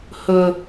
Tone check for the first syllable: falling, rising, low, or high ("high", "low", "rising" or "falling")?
high